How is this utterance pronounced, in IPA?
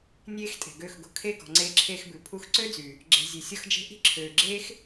nʲ eː˦ x tʼ e̤˨ ɡ ø˦˨ x ɡ o̤˧ kʰ e˦ ɡ ɔ̤˨ ŋ͡ǀ eː˧ ǁʰ eː˧ x b ʉ˨ pʰ u˧ x ǀ ø˦ d͡z y˨ | ɡ͡ǁ e̤˧ zʲ ʉ˨ sʲ ɔ˦ x d͡ʒ e̤˦ ʔ i̤˦ ǁʰ øː˨ ɡ͡ǁ eː˦ x

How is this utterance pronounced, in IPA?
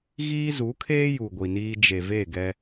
ɣ iː˦ z u˨˦ kʰ eː˦ j u˨ ɡʷ i˨ n iː˦ d͡ʒ e˨ v e˦˨ ɡ ɛ˦

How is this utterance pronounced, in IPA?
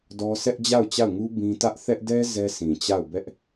d ɔ˦ sʰ ɛ˦ ʔ d͡ʑ a˦˨ ʊ̯ t͡ɕ a˦˨ ʊ̯ ŋ u˦ b ĩ˦ t ä˦ ʔ θ ɛ˦ ʔ d ɛ˦ z ɛ˦ sʰ ĩ˨ t͡ɕ a˦˨ ʊ̯ b ɛ˦ ʔ

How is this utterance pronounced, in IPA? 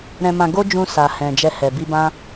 ɾ ɛ̃˧ m ã˧ ɡ o˦ d͡ʒ ũ˧ s a˨ h ɛ̃˨ d͡ʒ ɛ˧ h ɛ˨ b i˧ b ã˦

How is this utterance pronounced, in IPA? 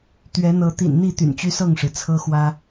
t̪ ɥ ɛ˨˦ n̪ ɤ˨˦ t̪ ḭ˨˩ n n̪ i˥˨ t̪ y̰˨˩ n t͡ɕ y˦ s ɤ˥˨ ŋ ʂ ɻ̩˩ t͡sʰ ɤ˦ x w ä˦

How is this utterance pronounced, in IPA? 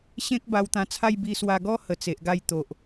ɕ ẽ˦ k̚ b a˧ w t̪ ã˧ t͡sʰ a˥˧ j b i˧ s w a˧ ɡ ɔ˦ h ə˨˩ t͡s e˨ ʔ ɡ a˥˧ j t̪ o˨ ʔ

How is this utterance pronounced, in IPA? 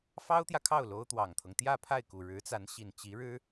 f ɑ˥ ʊ̯ t̪ j ä˨ kʰ ɑ˥˩ ʊ̯ l o˥ ʊ̯ t̪ w ɑ˨˩ ŋ t̪ʰ ɤ˦ ŋ t̪ j ä˥˧ pʰ a˥˩ ɪ̯ k u˨˩ ɻ ɻ̩˧˥ t͡s a˧˥ n ɕ i˨˩ n t͡ɕ i˧˥ ɻ ɻ̩˥

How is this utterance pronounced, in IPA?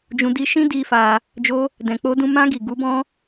d͡ʒ ũ˧ d i˧ ʃ ĩ˦ d i˧ f a˧ | d͡ʒ o˧ | d ɛ̃˨ k͡p o˧ d ũ˧ m ã˧ ɡ i˨ ɡ u˨˦ b ɔ̃˦

